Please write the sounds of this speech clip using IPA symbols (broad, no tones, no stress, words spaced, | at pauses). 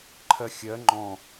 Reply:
ǃʰɜxʲɜ ŋ͡ǃɔ̃